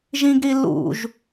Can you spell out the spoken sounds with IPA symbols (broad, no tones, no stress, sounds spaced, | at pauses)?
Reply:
ʒ ĩ ɡ ɾ i l ṵ ʒ